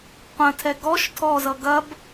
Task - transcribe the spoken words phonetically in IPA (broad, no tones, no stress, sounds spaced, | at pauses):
qʷ ɐ̃ tʰ ɛ ɡ ɔ ʃ tʰ ɔ z ʌ ɡ ɐ b